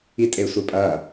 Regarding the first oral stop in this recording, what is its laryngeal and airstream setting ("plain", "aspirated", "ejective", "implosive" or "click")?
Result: ejective